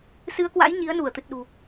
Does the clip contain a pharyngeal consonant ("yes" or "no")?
no